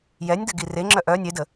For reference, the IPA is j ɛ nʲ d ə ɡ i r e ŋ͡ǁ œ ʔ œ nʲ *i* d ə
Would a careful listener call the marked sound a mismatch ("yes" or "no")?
yes